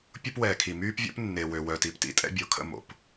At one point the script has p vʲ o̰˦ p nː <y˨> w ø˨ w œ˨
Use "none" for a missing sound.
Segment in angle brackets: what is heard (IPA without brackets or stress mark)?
e˨